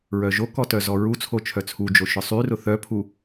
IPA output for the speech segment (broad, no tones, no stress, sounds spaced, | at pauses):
ɹ œ ʒ o k ɔ t œ z ɔ ɹ u t͡sʰ o t͡ʃʰ œ t͡sʰ u d͡ʒ o ʃ ʊ sˤ y r ʊ θ œ pʰ u